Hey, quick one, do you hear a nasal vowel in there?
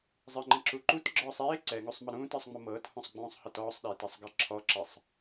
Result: yes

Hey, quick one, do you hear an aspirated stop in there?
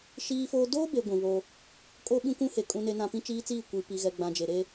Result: no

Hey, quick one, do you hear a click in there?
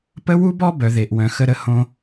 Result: no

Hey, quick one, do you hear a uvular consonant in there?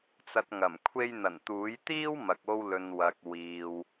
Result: no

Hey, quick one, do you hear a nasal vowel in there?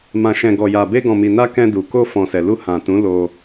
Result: yes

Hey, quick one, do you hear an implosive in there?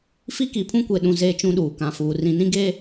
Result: yes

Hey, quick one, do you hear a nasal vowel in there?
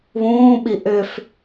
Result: yes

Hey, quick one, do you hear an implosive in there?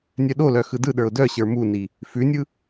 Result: yes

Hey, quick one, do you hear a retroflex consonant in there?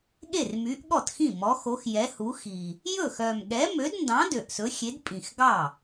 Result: no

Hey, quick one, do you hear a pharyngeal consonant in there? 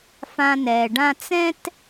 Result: no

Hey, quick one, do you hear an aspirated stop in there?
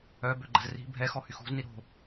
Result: no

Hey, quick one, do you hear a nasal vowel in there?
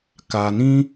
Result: yes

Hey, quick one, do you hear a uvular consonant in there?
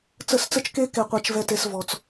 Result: yes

